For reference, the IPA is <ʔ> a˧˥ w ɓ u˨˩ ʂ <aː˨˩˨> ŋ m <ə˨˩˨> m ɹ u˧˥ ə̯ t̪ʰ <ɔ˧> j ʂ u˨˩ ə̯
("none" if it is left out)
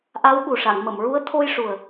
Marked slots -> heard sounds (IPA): ʔ, a˨˩˨, ə˨˩˨, o˧

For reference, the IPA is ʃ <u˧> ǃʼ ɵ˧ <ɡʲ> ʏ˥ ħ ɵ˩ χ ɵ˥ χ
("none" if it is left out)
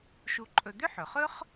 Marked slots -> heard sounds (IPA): u˧, d̪

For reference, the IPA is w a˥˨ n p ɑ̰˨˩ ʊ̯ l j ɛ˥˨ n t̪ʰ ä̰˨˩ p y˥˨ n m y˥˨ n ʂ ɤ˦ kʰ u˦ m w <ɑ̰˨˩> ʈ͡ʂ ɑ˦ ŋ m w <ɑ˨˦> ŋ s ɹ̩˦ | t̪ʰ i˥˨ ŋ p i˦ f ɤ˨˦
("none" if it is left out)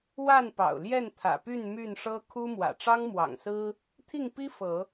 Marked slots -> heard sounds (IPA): ä̰˨˩, ɑ̰˨˩

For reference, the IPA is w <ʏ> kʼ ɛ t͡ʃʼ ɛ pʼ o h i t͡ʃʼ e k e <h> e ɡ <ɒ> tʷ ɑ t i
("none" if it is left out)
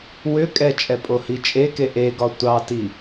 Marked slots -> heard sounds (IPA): ʏ, ʔ, ɒ

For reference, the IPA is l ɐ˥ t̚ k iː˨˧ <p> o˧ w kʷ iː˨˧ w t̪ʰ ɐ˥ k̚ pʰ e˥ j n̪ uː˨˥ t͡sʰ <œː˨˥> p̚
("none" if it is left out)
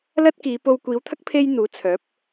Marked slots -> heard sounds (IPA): p, œː˨˥

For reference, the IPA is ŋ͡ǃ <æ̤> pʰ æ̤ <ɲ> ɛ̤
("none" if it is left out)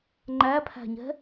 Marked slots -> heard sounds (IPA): æ, ɲ

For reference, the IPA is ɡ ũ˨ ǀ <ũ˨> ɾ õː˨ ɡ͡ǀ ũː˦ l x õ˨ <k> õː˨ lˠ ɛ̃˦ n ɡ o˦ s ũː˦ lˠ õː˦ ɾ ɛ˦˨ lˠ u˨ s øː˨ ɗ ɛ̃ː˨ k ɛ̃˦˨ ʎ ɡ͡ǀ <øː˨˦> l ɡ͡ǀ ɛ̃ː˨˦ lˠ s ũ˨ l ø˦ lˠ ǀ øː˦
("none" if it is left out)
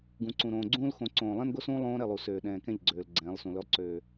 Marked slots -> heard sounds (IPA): ũ˨, ǀ, øː˨

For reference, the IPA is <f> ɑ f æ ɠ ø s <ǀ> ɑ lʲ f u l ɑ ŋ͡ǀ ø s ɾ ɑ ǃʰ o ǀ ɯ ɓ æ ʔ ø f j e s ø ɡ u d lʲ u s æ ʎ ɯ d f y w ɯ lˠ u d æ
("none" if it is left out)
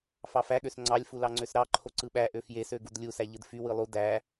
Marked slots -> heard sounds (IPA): f, ŋ͡ǀ

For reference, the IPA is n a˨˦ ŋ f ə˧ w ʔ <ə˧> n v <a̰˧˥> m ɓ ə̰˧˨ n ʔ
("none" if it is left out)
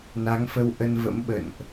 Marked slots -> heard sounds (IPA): ə˧, ə̰˧˥

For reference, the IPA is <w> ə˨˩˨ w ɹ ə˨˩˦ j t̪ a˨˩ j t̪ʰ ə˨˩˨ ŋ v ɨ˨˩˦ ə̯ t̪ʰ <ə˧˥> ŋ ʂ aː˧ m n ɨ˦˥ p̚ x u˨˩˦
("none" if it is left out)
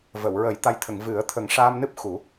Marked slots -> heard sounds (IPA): v, ə˨˩˦

